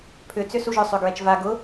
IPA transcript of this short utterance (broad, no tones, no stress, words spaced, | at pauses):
pʰʏt͡sʏ suʒœ sˤʏɡɹɛt͡ʃva ɡʊ